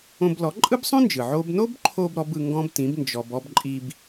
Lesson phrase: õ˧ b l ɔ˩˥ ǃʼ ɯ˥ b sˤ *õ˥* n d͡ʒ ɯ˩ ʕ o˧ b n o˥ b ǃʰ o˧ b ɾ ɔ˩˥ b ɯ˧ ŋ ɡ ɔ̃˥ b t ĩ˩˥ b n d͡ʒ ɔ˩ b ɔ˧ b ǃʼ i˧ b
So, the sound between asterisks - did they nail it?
yes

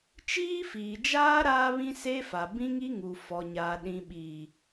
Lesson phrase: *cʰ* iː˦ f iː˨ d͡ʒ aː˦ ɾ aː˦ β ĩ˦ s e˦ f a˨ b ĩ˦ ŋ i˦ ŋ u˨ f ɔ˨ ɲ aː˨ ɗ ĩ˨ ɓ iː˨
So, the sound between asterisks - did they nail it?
no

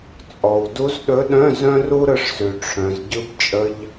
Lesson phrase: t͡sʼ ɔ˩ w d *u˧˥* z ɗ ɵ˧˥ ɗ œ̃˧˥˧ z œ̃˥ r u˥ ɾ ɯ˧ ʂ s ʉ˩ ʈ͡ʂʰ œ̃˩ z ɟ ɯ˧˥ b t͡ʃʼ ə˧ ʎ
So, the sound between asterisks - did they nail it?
yes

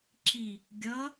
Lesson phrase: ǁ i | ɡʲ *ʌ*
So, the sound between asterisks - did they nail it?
yes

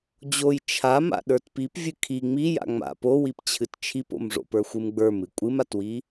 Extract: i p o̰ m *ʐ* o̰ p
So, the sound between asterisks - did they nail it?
yes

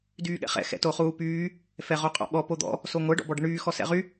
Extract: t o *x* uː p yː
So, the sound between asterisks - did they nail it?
no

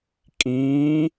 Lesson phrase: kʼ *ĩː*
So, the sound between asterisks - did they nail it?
yes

